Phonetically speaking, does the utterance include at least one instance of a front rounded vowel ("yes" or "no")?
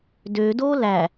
yes